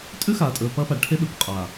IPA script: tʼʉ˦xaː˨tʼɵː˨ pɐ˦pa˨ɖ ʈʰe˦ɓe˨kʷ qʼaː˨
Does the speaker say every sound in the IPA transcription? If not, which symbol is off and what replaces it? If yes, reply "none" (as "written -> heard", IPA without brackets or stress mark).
none